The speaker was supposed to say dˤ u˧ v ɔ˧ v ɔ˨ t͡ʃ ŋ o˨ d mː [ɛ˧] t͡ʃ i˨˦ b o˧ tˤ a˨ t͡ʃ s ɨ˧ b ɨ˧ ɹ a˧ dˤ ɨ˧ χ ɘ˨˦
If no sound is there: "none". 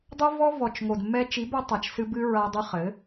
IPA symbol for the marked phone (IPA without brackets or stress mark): ɛ˧